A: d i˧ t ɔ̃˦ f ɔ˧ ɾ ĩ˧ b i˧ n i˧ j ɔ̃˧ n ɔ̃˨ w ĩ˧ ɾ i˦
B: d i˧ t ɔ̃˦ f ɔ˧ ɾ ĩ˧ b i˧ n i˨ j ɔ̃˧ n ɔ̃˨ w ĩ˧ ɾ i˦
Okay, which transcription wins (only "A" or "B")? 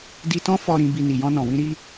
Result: B